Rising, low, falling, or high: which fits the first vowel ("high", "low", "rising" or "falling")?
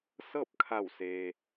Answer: falling